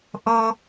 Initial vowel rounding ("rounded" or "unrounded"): rounded